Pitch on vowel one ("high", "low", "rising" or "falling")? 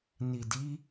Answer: low